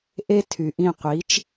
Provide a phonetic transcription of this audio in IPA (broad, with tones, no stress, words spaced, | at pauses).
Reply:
ʔe˦ tʰy˩ʔĩ˦˨qʷiː˩˥t͡ʃ